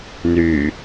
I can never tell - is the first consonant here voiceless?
no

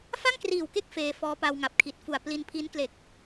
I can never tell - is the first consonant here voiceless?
yes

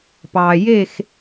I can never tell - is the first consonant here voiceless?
yes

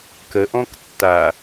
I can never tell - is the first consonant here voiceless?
yes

